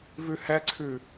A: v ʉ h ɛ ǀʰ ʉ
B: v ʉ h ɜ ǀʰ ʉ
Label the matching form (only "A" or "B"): A